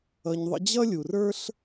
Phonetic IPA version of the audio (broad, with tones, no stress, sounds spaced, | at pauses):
ʌ˧ ɲ ðˤ ə̰˦ d͡ʑ ʌ˦ lʲ u˨ r ə˞˦ ɬ